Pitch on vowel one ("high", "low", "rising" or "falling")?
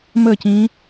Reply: falling